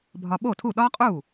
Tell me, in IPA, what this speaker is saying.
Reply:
bʱ ɒ˧ ɓ o˥˩ tʰ u˥˩ ɗ ɒ˥ qʼ u˥˩

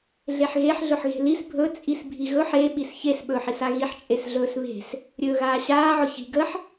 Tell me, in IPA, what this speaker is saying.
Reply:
ɮ e ħ ɣ e ħ ɮ ɵ ħ ɣ e̤ l i s bʱ ɵ t͡sʼ i s bʱ i ɣ ɵ ħ e ɓ i s ç e s ɓ ɵː ħ i s a ɣ i ħ t͡ʃʼ e s ɮ ɵː s β e̤ s | ɾʲ ɵː ɣ aː ɕ aː ʕ ʊ ç i̤ ɡ ə ħ

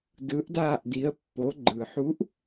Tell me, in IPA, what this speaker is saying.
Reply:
d ɯ˩˧ ʔ d aː˧˩ ʔ d i˩˧ ə̯ pː o˩˧ ɡ͡ǃ ɯ˩ ħ u˨˥ ʔ

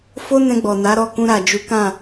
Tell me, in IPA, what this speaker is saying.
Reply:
f o˦ n ɛ̃˧ ɡ͡b ɔ˨ n a˨˦ ɾ ɔ˦˨ k ũ˧ ɾ a˨ d͡ʒ u˨˦ k ã˦˨

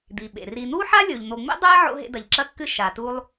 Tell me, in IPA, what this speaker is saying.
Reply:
d̪ i˩ ɓ ḛ˩ r i˨ n̪ u˥ ħ a˥ lʲ o˩ ʎ n̪ o˨ ŋ͡m ḛ˥ dˤ e˦ ʕ o̰˦ ɦ ḛ˦ d ɐ˩ ʎ ǁ ɐ˥ kː ɨ˥ ʃ a˩ t u˦ lˠ

